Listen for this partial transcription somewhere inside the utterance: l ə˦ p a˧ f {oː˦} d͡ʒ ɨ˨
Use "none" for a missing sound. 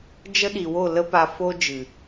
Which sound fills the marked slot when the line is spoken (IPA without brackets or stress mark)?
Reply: o˦